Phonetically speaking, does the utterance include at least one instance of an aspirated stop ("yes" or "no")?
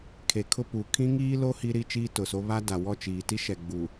yes